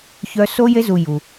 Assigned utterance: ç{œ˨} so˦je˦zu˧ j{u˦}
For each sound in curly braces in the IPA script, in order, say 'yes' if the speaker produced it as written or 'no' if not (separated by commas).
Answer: no, no